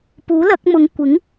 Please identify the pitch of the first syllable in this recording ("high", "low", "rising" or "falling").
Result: rising